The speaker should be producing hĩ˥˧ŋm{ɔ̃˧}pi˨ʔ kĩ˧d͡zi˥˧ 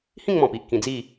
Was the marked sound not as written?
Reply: yes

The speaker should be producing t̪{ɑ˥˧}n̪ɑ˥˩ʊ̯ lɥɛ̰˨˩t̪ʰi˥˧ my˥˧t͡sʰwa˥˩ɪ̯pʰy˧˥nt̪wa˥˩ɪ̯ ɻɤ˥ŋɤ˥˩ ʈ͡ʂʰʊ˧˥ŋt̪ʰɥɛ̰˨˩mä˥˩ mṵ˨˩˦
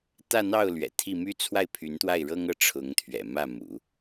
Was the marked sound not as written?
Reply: yes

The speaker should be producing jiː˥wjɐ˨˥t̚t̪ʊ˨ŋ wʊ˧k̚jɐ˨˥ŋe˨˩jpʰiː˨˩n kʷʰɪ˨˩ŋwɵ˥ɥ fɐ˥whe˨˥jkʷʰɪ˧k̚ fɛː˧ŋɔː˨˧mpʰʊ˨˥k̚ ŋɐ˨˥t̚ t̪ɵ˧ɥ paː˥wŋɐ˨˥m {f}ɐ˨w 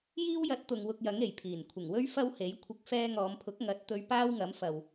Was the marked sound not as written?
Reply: no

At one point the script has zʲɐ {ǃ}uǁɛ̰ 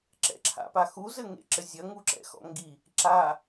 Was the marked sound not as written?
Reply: yes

